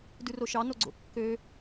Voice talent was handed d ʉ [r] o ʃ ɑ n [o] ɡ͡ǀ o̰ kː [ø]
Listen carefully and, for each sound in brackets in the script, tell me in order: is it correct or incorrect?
correct, correct, correct

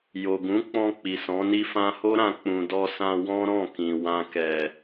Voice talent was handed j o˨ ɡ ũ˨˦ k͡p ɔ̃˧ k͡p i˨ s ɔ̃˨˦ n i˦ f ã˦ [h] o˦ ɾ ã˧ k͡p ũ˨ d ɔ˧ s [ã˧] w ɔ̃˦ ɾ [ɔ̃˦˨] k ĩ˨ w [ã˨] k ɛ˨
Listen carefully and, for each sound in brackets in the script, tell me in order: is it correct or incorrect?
correct, correct, correct, correct

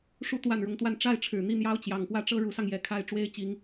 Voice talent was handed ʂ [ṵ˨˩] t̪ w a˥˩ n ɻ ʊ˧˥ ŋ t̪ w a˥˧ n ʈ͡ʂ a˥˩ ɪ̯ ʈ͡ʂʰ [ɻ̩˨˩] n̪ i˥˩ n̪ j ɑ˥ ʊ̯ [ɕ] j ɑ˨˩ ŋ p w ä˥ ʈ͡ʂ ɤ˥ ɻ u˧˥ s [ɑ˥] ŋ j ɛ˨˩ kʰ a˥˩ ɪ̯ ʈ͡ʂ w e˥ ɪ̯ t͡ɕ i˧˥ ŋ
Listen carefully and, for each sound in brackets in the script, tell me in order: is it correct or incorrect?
incorrect, correct, incorrect, incorrect

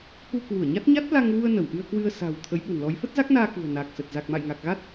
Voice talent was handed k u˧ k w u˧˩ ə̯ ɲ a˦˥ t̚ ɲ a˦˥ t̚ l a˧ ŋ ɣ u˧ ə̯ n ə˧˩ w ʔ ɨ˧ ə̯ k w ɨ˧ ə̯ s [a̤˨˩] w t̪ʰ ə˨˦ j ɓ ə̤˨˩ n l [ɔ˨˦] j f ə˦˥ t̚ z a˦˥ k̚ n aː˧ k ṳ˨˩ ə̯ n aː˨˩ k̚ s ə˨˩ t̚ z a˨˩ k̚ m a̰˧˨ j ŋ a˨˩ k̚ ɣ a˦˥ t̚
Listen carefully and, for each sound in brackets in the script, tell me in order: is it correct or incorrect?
correct, correct

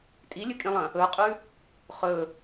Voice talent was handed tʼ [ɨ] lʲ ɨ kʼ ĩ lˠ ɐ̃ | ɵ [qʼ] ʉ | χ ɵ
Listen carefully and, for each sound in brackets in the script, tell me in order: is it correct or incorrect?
incorrect, correct

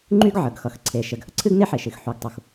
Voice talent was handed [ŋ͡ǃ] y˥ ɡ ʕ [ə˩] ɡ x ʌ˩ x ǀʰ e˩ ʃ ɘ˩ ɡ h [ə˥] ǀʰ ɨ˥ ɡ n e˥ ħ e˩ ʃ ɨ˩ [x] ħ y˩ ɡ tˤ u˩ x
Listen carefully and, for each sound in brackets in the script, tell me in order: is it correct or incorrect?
correct, correct, correct, correct

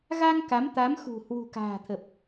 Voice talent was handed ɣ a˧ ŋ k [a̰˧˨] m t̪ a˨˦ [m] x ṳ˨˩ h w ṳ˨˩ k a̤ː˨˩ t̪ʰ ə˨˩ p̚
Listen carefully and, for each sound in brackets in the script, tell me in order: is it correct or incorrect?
incorrect, correct

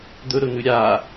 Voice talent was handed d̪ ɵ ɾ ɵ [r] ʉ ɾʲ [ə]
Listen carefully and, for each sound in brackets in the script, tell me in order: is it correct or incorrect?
incorrect, incorrect

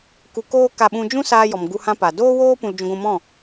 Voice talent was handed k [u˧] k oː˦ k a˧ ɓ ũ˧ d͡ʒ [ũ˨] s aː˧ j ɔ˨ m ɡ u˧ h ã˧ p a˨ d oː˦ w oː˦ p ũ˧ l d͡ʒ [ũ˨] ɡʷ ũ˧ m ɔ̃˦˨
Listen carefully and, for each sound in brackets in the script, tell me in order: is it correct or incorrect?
correct, incorrect, incorrect

